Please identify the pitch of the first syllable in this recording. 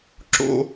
high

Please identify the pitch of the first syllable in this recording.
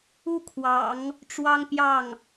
high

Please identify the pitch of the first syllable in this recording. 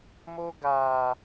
high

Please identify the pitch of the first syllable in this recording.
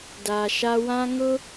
low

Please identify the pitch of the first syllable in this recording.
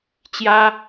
high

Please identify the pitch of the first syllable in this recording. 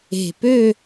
falling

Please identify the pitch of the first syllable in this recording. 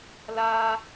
high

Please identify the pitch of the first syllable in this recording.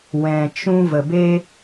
low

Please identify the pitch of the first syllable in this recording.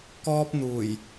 high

